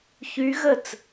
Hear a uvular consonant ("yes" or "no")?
no